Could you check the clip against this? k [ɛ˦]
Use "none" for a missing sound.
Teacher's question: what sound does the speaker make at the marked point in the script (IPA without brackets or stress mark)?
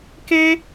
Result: e˦